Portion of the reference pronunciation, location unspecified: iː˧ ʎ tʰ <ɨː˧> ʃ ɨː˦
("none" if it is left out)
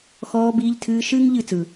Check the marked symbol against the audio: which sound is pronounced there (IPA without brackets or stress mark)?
ɨː˧